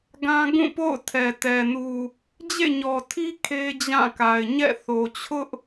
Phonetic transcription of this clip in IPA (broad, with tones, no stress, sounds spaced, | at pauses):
ɡ ã˦ ɡ ũ˦˨ p o̰˦˨ ʊ̯ tʰ ɛ˨ t ɛ˨ n u˨ | d͡ʑ ḛ˦˨ ɲ ɔ˨ tʰ i˦ kʰ e˦ d͡ʑ ã˦˨ k a˨ ɪ̯ ɲ ɛ̰˦˨ θ o˨ t͡ɕʰ ʊ˦ ʔ